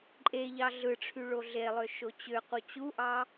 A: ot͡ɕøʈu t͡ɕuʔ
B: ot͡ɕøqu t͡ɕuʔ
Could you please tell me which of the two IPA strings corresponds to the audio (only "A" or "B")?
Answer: B